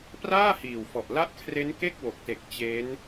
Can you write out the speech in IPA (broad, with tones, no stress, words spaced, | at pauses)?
praː˥˩hiː˨˩wfɔ˨˩ʔla˦˥ʔ kʰre˦˥nke˥˩k̚wo˨˩k̚te˨˩k̚ t͡ɕe˦˥n